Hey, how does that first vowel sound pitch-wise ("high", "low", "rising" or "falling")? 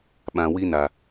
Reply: low